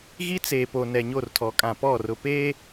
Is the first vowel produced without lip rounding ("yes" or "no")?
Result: yes